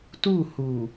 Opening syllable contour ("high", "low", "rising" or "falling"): falling